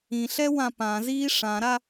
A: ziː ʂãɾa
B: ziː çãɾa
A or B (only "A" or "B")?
A